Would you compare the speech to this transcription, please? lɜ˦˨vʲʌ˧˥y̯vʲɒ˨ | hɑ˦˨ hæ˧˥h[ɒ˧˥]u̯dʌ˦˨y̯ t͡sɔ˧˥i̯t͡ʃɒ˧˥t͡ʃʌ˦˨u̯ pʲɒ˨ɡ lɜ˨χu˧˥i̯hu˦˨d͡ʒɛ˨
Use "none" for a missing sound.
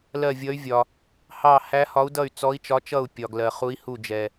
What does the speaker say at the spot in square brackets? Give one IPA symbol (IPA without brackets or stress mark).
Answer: ɒ˧˥